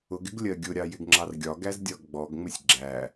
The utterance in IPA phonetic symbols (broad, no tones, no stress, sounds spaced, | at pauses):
ʊ ɡ ɪ ɡ lʲ ɜ ɡʲ ʊ ɾʲ ɑ j ɪ ɡ ŋ͡ǁ ɑ r ɡʲ ɒ ɡ æ z dʲ ɒ ɡ ɡ͡b ɔ ɡ ŋ͡m ɪ sʲ ɡ͡ǁ æ